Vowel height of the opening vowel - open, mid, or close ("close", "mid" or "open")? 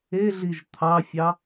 mid